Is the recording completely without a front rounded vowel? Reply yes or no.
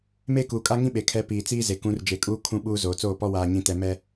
yes